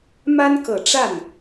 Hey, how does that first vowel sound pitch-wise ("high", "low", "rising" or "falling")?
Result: high